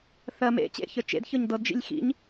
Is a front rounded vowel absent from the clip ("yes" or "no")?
yes